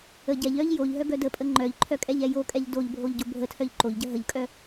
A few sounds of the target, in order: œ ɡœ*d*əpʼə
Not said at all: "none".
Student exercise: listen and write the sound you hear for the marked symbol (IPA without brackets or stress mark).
d